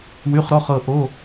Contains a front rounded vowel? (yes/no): yes